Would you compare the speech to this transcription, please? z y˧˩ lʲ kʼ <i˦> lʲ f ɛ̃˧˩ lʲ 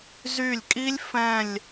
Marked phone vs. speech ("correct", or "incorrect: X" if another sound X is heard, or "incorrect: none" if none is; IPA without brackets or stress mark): correct